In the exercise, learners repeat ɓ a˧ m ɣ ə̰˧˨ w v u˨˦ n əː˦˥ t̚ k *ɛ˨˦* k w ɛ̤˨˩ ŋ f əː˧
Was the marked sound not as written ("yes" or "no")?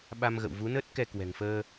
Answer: yes